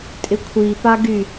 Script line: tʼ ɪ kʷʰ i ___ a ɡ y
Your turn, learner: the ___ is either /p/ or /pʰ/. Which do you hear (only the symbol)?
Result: p